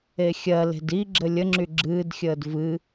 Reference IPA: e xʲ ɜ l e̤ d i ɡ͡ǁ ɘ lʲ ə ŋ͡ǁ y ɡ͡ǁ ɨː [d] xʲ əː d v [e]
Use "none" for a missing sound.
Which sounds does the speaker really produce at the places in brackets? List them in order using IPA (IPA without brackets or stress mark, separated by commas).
d, ɨ